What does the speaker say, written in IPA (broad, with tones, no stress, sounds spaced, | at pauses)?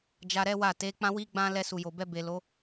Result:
d͡ʒ a˧ ɾ ɛ˦ w a˦˨ t e˨˦ k͡p ã˦ w i˦ ɡ͡b ã˦ l ɛ˧ s u˨ j o˨ b ɛ˧ b e˨ l o˨˦